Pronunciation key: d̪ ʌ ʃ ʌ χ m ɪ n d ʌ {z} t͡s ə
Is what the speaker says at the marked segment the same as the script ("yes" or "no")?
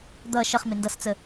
no